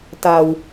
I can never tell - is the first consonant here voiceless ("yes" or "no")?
yes